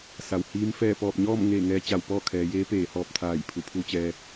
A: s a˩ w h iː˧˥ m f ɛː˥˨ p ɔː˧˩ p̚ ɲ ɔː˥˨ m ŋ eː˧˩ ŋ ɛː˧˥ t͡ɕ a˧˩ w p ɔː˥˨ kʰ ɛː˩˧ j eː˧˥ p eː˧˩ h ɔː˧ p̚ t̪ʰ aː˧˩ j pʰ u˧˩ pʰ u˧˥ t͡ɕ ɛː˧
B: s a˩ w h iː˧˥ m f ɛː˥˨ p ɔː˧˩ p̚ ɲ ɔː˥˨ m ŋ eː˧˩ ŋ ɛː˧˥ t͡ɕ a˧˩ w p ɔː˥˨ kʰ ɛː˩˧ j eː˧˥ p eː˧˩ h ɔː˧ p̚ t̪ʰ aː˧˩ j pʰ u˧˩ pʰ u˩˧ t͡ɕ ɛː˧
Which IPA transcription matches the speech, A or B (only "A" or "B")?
A